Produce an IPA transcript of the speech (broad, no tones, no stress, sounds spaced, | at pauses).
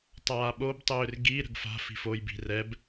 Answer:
tˤ aː ɓ o b tˤ ʏː r ɡ i ɾ ə̤ ɡ f a̤ f i̤ f o j b i̤ r ɛ b